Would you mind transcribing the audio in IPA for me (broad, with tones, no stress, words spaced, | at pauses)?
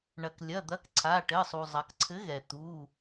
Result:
ɳɐ˩klʲɐ˩˧˩ d̪ɐ˨˥kǀʰa˩˧˩ʈɘ˩˧˩sˤu˩ zˤɐ˩˧kǀʰɘ˨˥ɣɛ˩ t̪u˩˧˩